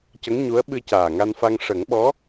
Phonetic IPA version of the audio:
c ə˧˥ ŋ ɲ u˧˥ ə̯ ɓ ɨ˧ c aː˨˩ ŋ a˧ n f a˧ ŋ ʂ ə˨˩˦ ŋ ɓ ɔ˧˥

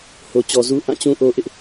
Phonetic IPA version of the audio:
h o˨ t͡ɕ ɔ˨ z u˦ ʔ ã˦˨ t͡ɕ ũ˦ ʔ o˦ ʔ ɪ˦ ʔ

